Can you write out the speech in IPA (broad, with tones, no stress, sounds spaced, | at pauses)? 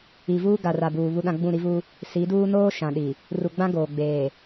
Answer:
i˨ v uː˦ ɡ a˨ r a˨ b uː˨ β u˦ ɗ ã˦ ɡ͡b ũ˦˨ ɾ i˦ v u˦ | s i˨˦ d uː˦ n oː˦ ʃ ã˨ ɗ i˨ | r u˨ ɡ͡b ã˦ ɡ oː˨ ɡ͡b eː˨